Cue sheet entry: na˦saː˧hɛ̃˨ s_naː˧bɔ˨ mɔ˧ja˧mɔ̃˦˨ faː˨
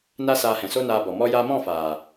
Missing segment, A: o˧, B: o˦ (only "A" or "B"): B